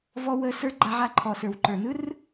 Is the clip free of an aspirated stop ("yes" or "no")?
no